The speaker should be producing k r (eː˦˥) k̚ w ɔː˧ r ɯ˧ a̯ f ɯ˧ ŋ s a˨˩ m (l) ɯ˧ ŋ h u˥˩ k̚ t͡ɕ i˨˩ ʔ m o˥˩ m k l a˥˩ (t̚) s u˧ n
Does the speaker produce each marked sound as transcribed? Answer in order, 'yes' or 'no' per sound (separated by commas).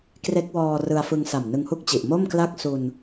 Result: no, no, no